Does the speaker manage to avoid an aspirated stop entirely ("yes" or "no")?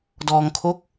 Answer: no